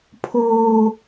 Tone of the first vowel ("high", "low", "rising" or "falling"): low